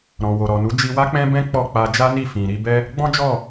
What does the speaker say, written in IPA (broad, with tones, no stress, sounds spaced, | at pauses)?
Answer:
ɾ ɔ̃˨ w o˨ ɾ ɔ˨ n u˨˦ d͡ʒ i˧ w a˦ k͡p ɛ̃˦ b ɛ̃˦ k͡p ɔ˦˨ k͡p a˧ d͡ʒ a˦ n i˦˨ f ĩ˨ ɾ i˧ b ɛ˦ | ɡ͡b ɔ̃˦ d͡ʒ ɔ˦˨